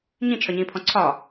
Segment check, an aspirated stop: present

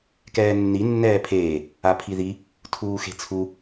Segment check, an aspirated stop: present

